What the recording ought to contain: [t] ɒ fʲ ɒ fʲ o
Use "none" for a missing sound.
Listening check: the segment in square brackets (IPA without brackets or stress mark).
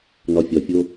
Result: n